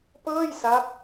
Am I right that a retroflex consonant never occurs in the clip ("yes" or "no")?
yes